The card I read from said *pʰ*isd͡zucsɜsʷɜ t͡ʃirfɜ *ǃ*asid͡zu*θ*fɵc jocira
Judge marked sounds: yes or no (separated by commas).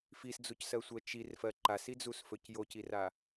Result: no, yes, no